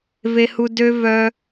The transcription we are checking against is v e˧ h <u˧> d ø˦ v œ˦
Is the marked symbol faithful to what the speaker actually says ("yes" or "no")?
yes